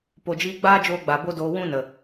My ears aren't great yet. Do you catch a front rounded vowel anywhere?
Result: no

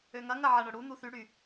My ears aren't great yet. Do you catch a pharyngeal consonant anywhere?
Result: yes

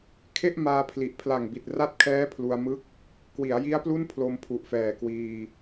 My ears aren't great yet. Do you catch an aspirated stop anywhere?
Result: yes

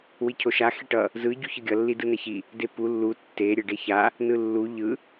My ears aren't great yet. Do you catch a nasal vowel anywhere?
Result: no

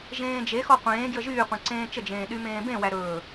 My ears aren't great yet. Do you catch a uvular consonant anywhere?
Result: yes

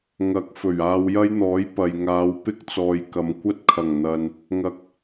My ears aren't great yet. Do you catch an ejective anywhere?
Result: no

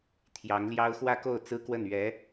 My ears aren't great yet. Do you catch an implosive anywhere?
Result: no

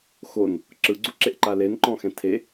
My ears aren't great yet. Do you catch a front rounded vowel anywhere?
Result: no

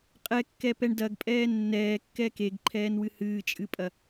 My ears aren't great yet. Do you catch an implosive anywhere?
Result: no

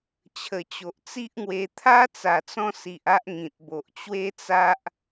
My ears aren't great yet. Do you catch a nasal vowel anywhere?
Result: yes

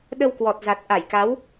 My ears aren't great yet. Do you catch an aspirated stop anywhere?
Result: no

